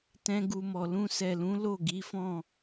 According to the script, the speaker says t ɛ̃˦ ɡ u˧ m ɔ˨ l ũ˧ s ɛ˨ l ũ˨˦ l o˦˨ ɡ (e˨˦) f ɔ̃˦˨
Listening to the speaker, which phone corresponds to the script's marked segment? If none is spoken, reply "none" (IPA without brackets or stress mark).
i˨˦